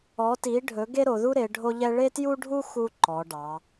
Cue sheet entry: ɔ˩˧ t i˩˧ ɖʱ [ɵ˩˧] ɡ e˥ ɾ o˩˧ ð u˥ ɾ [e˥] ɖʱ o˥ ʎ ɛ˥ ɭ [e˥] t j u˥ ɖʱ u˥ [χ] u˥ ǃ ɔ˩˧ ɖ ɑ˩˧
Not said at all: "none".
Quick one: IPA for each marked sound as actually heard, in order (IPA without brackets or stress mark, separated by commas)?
ɵ˩˧, e˩˧, e˥, x